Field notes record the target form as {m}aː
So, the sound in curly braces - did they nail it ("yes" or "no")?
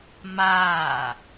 yes